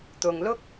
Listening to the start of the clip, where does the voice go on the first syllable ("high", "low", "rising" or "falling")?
low